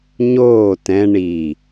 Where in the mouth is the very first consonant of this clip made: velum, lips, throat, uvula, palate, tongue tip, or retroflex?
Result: palate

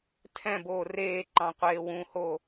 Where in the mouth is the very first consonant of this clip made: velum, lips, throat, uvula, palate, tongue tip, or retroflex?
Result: tongue tip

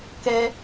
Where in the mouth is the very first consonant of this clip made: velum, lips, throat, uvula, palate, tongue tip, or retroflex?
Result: velum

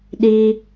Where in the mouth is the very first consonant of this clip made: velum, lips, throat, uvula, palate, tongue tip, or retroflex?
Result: tongue tip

